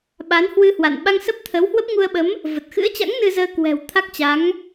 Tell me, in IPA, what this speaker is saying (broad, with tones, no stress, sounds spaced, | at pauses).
ɓ a˨˦ n h w ɨ˧ h w a̰˧˨ n ɓ a˧ ŋ s ə˦˥ p̚ t̪ʰ ə˨˦ w h w ə˦˥ p̚ ŋ u˧ ə̯ ɓ ə˨˦ m | v ə˨˩ t̚ x ɨ̰˧˥ ə̯ t͡ɕ a̰˧˥ ŋ n ɨ˧ z əː˧ k w ɛ̤˨˩ w t̪ʰ a˦˥ k̚ t͡ɕ a˨˦ ŋ